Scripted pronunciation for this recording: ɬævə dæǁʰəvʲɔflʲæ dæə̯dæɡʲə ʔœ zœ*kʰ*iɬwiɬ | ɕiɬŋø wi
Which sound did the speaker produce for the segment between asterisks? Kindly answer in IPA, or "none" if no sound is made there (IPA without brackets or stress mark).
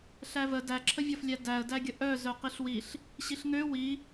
q